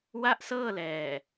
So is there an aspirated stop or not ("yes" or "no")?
no